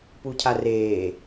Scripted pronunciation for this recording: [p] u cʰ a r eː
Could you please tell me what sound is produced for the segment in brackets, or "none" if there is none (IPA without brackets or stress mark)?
p